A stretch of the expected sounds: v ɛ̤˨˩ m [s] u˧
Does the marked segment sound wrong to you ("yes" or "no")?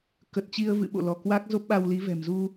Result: yes